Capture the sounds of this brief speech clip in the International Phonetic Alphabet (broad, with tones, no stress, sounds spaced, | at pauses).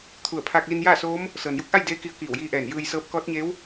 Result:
t̪ʰ u˧˩ ə̯ pʰ aː˧ k̚ l i˧ n j aː˥˨ s oː˧˥ m | s ɤː˩ n j u˧˥ k̚ ʔ a˥˨ j d eː˧˥ k i˧ ə̯ k iː˧˩ w j iː˧ ʔ ɛː˧˩ n j ɯː˧ j s ɤː˧˥ p̚ k ɔː˧˥ t̚ ɲ eː˧˥ w